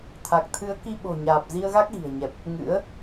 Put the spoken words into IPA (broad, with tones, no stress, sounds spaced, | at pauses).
t̪ʰ a˨˩ k̚ t̪ʰ ɨ˨˦ ə̯ k i˧ ɓ o̤˨˩ ɲ aː˨˩ p̚ z i˧ ə̯ ɣ a˦˥ k̚ ɣ i̤˨˩ ə̯ ɲ ɛ˨˩ p̚ | ŋ ɨ̰˧˥ ə̯